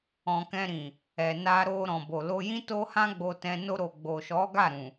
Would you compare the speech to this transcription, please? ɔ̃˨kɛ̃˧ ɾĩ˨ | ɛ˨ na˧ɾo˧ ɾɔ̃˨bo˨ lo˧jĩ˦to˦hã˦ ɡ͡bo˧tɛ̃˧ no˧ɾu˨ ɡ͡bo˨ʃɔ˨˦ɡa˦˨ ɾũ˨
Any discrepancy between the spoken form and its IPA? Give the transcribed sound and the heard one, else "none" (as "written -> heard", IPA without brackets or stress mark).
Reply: u˨ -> o˨